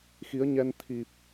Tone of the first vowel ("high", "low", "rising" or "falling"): rising